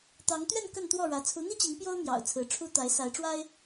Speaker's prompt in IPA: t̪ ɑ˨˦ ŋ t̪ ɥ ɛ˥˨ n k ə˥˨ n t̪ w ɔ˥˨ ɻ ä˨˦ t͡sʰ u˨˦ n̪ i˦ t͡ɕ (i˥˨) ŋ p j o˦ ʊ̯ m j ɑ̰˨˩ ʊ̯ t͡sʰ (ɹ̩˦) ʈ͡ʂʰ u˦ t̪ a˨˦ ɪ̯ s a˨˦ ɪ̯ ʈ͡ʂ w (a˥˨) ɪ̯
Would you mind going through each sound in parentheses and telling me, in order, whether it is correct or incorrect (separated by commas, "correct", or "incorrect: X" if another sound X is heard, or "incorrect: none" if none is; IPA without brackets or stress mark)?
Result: incorrect: i˨˦, incorrect: ɹ̩˨˦, incorrect: a˦